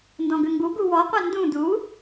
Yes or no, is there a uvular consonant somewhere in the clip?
yes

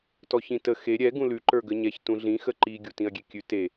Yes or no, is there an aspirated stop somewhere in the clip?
no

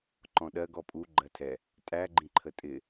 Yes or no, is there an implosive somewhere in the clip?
yes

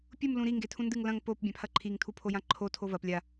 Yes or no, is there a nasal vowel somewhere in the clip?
yes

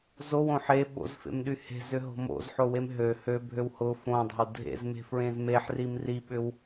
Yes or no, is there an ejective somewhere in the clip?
no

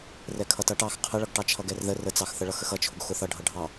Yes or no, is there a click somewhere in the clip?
no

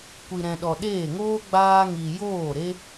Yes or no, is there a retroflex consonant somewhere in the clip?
no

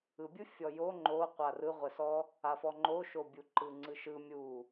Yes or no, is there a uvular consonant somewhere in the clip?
yes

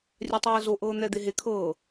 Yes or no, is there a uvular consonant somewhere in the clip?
no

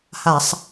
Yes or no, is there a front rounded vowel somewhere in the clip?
no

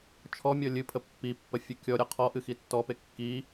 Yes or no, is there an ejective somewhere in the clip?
no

